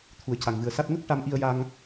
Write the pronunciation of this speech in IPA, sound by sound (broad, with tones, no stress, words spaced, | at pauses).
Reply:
t̪ʰu˨˩ə̯ca˨˩ŋvɨ˨˩ə̯sa˦˥t̚ ŋə˦˥k̚ ʈa˧mʔi˧ə̯ja˧ŋ